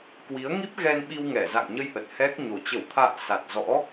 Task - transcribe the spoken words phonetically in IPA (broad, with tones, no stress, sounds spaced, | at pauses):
k w i˨˦ ə̯ ŋ i˦˥ p̚ ɣ ɛ˧ n ɓ i˧ w ŋ ɛ˧˩ z a̰˧˨ ŋ ɲ ə˧ j ʔ ə˨˩ t̚ h ɛ˦˥ k̚ ɲ o˨˩ t͡ɕ ə˧˩ w t̪ʰ a̰ː˧˨ s a˨˩ t̚ z ɔ̰˧˥